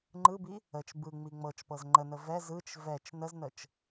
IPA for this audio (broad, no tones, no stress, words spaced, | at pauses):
ŋ͡ǃɯbi | ət͡ʃ bɯŋ͡mi ŋ͡mɤt͡ʃpɤz ŋ͡ǃənə vɛz ɯt͡ʃ vɛt͡ʃ nəznət͡ʃ